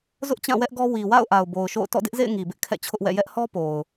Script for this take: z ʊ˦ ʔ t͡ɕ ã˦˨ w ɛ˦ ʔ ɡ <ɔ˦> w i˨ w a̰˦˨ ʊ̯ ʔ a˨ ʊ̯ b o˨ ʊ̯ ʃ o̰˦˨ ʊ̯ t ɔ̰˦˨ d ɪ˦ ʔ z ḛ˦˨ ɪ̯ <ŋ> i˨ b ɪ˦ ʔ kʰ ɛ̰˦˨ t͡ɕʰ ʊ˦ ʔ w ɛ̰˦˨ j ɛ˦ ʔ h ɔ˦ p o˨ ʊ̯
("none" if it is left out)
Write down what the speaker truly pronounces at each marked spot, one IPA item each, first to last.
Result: ɔ˦, ŋ

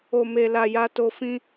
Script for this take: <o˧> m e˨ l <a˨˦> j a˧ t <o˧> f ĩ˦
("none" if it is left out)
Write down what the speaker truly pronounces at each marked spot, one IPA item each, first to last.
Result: o˨, a˨, o˧

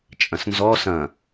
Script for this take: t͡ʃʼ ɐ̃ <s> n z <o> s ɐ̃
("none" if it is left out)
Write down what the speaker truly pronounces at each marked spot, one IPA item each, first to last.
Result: s, ɔ

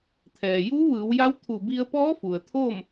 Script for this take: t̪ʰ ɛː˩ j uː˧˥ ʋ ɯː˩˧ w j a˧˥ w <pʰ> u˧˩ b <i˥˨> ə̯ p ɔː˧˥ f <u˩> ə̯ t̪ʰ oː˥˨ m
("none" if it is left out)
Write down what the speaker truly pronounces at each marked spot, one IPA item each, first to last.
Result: t̪ʰ, i˧, u˩

